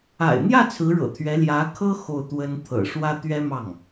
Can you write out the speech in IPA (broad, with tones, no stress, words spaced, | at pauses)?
a̰˨˩ɪ̯n̪jä˥˩ t͡sʰɹ̩˧˥ɻɤ̰˨˩t̪ʰɥɛ˧˥ ljä˧˥kʰɤ˥ xo˥˩ʊ̯t̪wə˥n t̪ʰɤ̰˨˩ʂwä˥ t̪ɥɛ˥mɑ˥˩ŋ